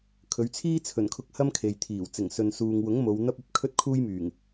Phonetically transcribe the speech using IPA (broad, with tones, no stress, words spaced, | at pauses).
kʰɵ˨˧ɥt͡sʰiː˥ t͡sʰɵ˨˩nkʰʊ˧k̚ hɐ˥m kʰe˨j t̪ʰiː˨˩w t͡sɪ˨˩ŋsɵ˨n suː˨ŋwʊ˨˥ŋ mo˨˧w n̪ɐ˥p̚ ɐ˧p̚kʰɵ˥t̚kʰuː˥jmyː˨˩ŋ